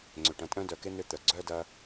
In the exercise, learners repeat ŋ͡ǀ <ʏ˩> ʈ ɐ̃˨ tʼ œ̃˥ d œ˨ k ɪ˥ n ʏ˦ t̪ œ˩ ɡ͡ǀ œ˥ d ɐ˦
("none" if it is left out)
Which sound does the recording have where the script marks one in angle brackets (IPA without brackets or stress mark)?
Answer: ʏ˩